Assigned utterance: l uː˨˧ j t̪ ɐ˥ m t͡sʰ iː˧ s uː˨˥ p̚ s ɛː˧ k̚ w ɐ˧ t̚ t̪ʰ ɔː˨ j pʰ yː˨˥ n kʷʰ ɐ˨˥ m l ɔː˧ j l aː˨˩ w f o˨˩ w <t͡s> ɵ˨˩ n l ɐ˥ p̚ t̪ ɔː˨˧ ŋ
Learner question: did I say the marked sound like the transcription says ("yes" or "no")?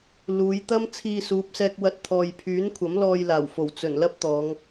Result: yes